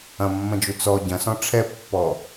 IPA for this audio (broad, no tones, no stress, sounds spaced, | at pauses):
ɐ̃ mː ɐ̃ d͡ʒ u t͡s ɔ ɟ ɐ̃ s ɔ̃ ʈ͡ʂʰ ɛ pː ɔ